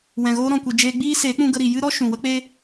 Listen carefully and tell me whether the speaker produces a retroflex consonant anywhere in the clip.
no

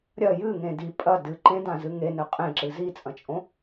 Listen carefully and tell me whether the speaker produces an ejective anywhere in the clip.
yes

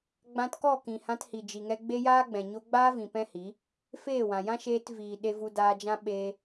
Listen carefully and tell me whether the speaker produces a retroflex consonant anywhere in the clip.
no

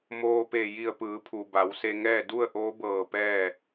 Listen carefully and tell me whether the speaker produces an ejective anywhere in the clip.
no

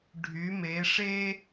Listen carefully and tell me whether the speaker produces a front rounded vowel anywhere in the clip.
yes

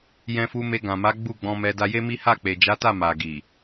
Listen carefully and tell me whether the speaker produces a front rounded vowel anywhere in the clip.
no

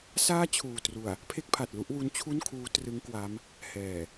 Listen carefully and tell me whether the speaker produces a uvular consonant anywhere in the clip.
no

